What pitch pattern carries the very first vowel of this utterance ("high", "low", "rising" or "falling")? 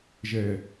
low